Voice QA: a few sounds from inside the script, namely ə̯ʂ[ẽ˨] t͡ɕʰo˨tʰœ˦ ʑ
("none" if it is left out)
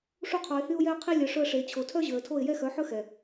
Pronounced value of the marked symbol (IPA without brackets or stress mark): e˨